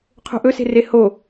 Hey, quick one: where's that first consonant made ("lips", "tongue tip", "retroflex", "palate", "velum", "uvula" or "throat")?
uvula